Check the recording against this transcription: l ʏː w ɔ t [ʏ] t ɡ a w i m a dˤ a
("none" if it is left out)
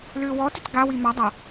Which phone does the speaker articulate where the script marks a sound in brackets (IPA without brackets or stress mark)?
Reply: ʏ